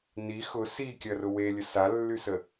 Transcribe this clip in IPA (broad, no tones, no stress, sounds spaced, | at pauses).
n i x ʊ s i kʲ ɐ r ʊ w e lʲ ə s a lː y s ə